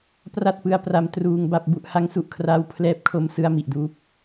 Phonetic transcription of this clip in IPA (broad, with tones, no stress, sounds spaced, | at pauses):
p r a˥˩ t̚ p ɯ˧ a̯ p r a˧ m t r uː˧ ŋ b a˥˩ p̚ b u˥˩ ʔ h a˦˥ ŋ s u˨˩ ʔ kʰ r aː˦˥ w pʰ l ɛː˦˥ p̚ kʰ o˧ m s ɯ˧ a̯ m i˨˩ ʔ d uː˦˥ p̚